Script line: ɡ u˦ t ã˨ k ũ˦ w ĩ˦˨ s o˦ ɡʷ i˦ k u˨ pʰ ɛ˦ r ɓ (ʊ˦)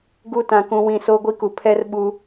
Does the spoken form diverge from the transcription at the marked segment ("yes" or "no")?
yes